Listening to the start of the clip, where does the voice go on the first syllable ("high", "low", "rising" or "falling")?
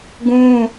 high